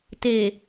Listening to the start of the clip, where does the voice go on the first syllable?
low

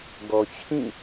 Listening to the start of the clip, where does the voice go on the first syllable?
low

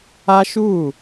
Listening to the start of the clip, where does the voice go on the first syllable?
high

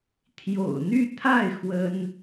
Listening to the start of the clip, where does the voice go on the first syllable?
low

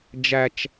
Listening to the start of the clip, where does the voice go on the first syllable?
low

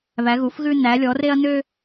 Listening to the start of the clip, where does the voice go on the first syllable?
rising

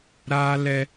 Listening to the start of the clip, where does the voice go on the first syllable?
high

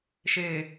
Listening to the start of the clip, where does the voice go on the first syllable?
low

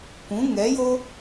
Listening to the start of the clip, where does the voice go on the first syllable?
rising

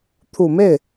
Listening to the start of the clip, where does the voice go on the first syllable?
low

